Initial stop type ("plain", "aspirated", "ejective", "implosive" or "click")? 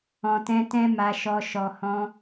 plain